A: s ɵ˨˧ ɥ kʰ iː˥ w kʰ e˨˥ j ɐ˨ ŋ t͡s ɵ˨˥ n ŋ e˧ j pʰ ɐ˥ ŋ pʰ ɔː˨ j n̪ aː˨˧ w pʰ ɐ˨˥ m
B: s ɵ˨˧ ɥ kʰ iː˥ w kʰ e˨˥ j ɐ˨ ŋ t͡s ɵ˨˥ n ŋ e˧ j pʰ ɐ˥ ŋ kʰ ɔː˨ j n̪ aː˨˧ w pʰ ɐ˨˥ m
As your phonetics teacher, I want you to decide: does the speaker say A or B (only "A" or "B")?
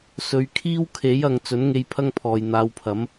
A